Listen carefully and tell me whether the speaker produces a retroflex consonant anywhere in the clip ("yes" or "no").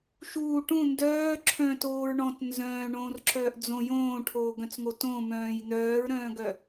yes